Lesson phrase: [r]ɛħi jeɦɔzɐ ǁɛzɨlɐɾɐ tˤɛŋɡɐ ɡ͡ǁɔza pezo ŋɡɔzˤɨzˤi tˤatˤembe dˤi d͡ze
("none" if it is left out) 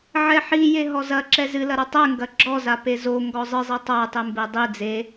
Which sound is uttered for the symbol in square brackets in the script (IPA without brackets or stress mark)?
ʕ